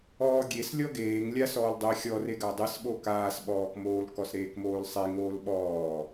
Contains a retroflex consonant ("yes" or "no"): no